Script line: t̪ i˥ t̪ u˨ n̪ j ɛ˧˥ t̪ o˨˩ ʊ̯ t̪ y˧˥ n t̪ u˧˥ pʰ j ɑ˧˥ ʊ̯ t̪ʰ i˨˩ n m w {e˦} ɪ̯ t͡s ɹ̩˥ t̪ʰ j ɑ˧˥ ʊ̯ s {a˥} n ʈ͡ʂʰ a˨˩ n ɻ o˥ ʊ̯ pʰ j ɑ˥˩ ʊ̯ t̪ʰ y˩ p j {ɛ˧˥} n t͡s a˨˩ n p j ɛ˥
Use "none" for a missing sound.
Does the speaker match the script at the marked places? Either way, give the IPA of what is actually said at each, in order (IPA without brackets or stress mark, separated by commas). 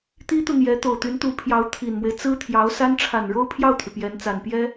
e˦, a˥, ɛ˧˥